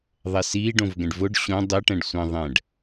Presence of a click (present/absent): absent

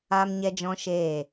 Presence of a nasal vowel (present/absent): present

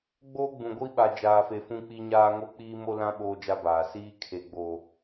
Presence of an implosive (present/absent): present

